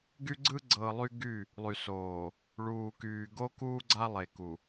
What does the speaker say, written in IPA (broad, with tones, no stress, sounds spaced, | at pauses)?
ɡ y˦ ɡ͡ǀ ɯ˦ ɡ͡ǀ ɤ˨ lˠ y˦ ɡ y˦˨ | lˠ y˨ s oː˨ | ɭ uː˨ k yː˨ ɡ o˦ k uː˦ ɡ͡ǀ a˦ lˠ e˨ k u˨